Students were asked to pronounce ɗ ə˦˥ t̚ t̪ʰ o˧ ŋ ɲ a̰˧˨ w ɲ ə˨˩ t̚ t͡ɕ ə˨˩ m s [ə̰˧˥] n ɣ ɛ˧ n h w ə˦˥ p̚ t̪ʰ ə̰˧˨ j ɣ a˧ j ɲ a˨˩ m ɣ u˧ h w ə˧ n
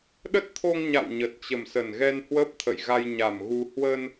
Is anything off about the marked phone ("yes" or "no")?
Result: yes